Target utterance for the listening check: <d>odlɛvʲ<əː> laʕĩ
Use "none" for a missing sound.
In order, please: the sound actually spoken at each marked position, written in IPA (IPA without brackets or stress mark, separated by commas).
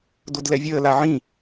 d, əː